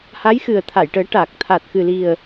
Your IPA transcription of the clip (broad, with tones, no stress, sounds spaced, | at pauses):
h a˧˥ j x ɨ˨˩ ə̯ t̪ʰ a˨˩˨ j ʈ əː˨˩˦ ʈ aː˨˩ k̚ t̪ʰ a˨˩ t̚ x ɨ˨˩ l i˨˩ ə̯